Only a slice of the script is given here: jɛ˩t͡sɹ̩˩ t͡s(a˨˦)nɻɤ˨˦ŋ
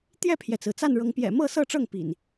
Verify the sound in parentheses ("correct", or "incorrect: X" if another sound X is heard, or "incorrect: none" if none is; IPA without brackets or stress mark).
incorrect: a˥˨